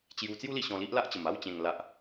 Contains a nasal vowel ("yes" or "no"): yes